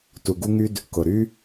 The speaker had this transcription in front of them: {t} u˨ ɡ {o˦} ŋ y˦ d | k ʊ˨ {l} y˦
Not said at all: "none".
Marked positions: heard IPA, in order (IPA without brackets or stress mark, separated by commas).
t, u˦, ɾ